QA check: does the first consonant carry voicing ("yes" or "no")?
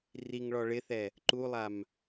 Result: yes